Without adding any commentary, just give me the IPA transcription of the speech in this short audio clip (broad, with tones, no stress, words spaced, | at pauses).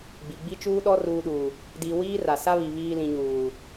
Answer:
ɡ͡bi˨ɡ͡bi˦t͡ʃuː˦ɗɔ˦ ruː˨ɗuː˨ | di˨ wiː˦ra˨sa˦βi˨ βiː˨ lĩ˨ɲuː˨